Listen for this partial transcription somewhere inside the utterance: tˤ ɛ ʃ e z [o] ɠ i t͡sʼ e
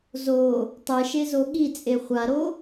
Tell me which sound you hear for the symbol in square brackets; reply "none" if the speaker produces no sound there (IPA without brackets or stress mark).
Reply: o